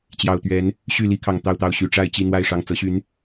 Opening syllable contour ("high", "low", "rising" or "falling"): low